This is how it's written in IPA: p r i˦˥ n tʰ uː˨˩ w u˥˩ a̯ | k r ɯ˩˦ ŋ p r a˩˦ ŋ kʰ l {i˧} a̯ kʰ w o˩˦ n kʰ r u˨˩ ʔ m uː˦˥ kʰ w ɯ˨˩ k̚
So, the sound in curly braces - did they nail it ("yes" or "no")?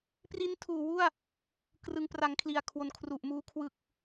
no